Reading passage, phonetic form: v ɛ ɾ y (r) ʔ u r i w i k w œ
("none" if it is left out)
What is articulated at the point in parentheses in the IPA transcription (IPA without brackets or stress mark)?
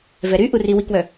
none